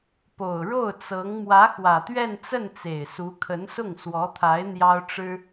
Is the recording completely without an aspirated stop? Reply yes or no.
no